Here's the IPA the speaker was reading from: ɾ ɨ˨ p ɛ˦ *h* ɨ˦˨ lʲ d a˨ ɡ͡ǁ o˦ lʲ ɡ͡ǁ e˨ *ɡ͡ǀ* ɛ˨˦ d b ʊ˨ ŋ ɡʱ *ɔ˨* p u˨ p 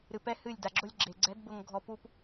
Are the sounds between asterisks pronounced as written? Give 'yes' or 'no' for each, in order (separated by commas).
yes, yes, yes